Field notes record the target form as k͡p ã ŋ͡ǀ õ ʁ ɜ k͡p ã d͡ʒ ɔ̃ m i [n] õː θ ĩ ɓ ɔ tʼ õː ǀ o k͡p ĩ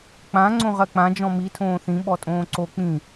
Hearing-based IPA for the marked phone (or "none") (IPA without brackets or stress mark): tʰ